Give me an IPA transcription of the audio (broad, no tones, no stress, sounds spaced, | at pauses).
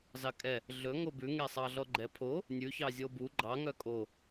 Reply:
z ɑ kʼ ɛ | ɮ ɵ ŋ o b ʉ ŋ e sˤ ɑ ɮ ɔ ɡ͡ǃ ɛ pʰ o | nʲ ʉ ç ɑ zʲ o b u ɡ͡ǃ ɑ ŋ œ kʼ o